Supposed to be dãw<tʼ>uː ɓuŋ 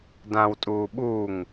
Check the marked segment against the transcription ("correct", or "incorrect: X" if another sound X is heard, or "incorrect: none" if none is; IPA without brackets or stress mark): correct